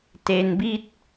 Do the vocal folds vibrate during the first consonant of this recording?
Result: no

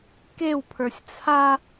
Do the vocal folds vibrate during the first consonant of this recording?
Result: no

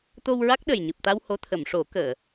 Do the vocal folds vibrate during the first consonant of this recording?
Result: no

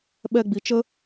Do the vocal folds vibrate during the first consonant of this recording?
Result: yes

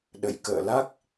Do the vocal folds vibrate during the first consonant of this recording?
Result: yes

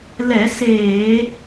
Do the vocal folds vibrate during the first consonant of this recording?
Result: yes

